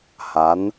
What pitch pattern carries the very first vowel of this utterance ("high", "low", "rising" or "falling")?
rising